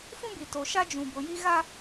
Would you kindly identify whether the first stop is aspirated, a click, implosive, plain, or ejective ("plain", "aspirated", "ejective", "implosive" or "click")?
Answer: plain